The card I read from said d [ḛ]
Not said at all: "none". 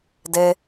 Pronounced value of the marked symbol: e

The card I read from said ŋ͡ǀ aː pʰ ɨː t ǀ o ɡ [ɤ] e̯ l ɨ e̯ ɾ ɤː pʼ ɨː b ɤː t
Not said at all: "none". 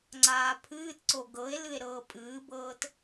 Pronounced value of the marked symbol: ɤ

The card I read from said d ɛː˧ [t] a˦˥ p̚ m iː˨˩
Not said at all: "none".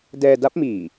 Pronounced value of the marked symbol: d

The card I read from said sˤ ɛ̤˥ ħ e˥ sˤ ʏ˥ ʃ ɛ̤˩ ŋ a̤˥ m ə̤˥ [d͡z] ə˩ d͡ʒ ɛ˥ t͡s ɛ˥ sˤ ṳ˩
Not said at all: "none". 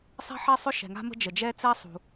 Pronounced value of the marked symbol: d͡ʒ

